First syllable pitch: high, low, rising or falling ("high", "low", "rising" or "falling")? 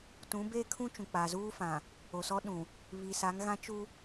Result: rising